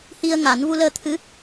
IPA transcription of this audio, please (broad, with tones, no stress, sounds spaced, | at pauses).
h i˧ ə̯ ŋ a˨˩˦ n v u˧ l əː˧ t̪ʰ ɨ˧˥